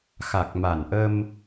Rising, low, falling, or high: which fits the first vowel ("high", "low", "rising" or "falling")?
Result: low